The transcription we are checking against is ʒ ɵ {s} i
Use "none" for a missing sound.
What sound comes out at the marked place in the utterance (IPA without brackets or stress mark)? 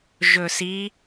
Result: s